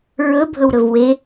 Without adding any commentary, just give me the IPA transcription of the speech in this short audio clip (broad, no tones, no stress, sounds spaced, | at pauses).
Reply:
ɹ ɵ bʱ ɵ w ɾ ɵ v w e